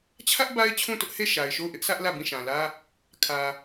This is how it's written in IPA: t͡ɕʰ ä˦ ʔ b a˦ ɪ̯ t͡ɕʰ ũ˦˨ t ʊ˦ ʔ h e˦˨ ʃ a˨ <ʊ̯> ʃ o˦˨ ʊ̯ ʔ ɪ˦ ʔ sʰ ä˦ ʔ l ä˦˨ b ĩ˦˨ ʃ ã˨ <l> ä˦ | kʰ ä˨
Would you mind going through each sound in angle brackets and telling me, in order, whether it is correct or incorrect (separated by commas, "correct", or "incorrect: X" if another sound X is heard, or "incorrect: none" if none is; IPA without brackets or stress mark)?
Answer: incorrect: ɪ̯, correct